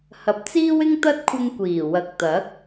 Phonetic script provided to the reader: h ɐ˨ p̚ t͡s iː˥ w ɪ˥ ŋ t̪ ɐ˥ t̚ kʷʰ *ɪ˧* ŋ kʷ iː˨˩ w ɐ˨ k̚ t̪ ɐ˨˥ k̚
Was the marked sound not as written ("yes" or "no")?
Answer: no